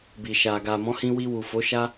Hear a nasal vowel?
yes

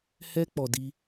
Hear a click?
no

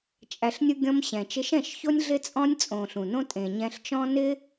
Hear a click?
no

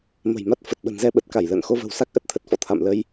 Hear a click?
no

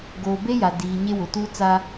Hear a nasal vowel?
no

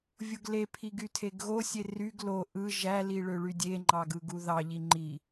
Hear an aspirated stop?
yes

